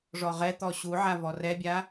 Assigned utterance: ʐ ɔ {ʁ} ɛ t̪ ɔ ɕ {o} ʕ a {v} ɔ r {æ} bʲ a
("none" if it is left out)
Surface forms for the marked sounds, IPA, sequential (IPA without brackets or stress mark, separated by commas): ʁ, u, v, ɛ